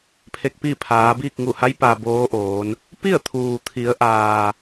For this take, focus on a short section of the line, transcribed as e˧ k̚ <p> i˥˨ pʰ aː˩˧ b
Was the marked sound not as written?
no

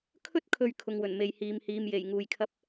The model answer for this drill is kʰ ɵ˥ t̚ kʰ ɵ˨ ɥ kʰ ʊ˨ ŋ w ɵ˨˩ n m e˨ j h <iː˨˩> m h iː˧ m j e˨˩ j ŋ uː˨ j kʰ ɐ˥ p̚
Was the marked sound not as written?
yes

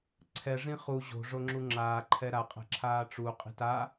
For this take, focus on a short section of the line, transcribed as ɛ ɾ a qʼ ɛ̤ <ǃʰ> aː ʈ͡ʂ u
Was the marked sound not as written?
yes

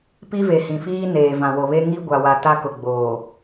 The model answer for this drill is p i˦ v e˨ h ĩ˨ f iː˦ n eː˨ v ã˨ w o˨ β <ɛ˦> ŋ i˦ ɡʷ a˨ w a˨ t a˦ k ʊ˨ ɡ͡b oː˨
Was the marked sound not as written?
yes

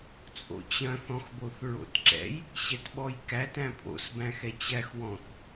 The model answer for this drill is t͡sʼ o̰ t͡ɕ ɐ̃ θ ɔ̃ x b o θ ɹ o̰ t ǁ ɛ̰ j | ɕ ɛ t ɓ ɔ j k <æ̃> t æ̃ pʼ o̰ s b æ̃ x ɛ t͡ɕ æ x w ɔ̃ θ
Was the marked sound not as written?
yes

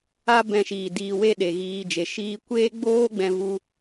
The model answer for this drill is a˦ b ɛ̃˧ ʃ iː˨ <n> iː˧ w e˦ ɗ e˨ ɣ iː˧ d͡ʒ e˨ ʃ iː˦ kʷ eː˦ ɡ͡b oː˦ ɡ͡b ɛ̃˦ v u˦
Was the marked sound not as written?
yes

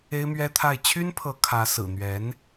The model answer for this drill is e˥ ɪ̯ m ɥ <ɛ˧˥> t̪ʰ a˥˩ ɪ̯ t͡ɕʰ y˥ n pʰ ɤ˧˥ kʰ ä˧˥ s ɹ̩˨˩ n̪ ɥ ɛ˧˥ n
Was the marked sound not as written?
yes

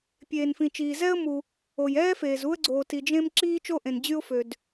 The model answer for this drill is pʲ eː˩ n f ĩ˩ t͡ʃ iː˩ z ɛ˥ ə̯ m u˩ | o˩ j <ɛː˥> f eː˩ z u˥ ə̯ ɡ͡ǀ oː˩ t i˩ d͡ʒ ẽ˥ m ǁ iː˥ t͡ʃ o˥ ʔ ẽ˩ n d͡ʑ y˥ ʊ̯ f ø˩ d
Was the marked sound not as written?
no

